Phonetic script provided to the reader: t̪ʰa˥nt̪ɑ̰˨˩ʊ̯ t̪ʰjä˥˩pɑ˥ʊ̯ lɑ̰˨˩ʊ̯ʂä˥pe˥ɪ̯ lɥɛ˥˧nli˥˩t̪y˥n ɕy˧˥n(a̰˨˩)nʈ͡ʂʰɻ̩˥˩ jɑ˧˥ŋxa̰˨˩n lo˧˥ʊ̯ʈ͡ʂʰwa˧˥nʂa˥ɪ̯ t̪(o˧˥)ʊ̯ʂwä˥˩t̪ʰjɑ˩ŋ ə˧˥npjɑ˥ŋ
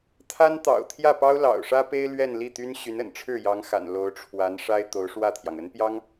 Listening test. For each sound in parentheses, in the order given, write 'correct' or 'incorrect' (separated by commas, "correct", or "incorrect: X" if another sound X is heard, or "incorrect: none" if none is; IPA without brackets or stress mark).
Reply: incorrect: ə̰˨˩, correct